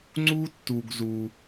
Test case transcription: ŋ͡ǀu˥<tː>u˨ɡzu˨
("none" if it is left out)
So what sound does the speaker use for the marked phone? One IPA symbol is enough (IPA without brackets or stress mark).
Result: tː